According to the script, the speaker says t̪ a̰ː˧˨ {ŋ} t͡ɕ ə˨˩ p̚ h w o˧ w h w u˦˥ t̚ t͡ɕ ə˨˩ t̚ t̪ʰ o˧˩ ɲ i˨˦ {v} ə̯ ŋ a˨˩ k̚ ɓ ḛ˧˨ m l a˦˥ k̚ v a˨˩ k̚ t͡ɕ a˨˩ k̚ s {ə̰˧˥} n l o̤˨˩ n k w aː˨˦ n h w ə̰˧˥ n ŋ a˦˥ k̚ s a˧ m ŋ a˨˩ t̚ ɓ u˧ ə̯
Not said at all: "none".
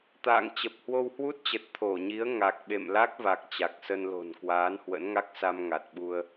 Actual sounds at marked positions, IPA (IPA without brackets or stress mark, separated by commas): ŋ, none, ə˧